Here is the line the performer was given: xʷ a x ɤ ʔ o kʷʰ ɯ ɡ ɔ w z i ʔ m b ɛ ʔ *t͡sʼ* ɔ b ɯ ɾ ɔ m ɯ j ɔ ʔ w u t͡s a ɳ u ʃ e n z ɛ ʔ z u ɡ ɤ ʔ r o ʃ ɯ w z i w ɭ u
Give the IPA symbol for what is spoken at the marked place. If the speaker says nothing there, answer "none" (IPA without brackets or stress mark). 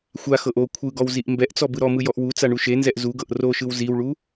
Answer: t͡s